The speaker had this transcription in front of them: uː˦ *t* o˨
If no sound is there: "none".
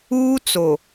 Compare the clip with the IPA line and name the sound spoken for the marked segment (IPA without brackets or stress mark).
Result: t͡s